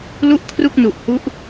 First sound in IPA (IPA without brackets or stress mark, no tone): l